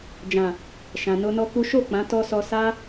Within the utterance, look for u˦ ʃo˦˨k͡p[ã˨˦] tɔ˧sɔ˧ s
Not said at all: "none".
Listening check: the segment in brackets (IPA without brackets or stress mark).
ã˨˦